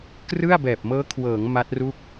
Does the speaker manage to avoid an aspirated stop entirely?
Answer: no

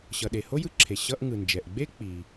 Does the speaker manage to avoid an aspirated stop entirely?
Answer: no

